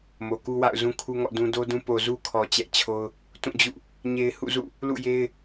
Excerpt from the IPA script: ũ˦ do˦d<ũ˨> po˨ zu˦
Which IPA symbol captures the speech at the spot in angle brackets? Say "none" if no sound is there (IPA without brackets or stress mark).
ũ˦